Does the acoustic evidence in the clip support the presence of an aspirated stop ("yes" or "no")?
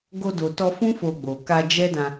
no